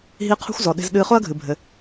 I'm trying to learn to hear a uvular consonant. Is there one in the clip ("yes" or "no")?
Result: yes